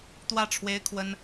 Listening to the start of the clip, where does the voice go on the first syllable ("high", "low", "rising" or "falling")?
falling